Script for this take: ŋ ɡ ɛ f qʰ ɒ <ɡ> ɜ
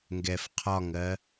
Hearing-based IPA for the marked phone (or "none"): ŋ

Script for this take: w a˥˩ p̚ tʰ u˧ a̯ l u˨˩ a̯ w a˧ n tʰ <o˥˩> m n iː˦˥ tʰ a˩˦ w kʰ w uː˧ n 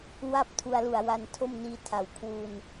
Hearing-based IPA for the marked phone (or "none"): o˥˩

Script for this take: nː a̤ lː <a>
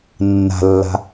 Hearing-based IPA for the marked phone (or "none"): a̤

